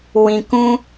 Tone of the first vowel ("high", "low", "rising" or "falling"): low